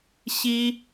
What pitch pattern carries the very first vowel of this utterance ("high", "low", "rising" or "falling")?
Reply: high